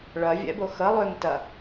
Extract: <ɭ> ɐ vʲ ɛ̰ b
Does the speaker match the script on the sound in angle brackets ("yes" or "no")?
yes